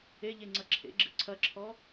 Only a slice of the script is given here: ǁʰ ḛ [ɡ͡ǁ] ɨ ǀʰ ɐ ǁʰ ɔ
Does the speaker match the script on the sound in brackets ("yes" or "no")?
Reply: yes